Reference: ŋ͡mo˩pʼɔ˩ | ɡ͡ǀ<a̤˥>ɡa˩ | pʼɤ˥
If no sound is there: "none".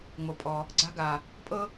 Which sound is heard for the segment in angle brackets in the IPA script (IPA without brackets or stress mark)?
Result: a̤˥